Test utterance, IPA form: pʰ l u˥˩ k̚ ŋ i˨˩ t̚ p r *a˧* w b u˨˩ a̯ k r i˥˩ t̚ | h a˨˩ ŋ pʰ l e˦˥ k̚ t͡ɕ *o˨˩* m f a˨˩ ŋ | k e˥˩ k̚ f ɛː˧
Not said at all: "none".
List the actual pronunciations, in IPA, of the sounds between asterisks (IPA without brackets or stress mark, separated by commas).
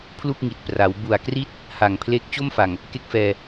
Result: a˩˦, o˥˩